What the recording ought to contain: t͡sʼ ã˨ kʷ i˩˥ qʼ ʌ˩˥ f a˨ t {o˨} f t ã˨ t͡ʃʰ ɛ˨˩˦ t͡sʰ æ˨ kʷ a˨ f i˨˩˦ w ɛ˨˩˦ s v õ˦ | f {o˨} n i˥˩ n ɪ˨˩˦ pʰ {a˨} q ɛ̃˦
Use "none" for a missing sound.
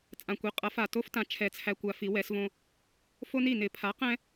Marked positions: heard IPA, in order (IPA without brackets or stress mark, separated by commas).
o˦, o˦, a˩˥